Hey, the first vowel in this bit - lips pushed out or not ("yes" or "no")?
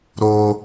yes